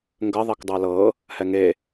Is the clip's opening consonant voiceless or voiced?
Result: voiced